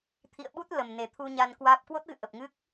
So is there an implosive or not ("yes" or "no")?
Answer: yes